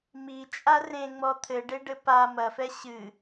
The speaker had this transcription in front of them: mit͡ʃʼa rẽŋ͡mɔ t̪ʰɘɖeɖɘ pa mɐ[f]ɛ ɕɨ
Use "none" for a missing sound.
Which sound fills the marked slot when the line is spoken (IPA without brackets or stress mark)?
f